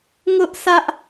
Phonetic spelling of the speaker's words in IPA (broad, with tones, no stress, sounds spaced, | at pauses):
ŋ ʊ˦ ʔ s ä˦ ʔ